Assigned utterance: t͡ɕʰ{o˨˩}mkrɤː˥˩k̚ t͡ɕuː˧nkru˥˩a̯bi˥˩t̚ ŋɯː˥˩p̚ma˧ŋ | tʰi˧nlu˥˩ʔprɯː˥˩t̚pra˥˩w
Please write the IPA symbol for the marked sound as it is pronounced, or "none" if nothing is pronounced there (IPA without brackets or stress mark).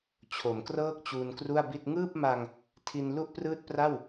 o˩˦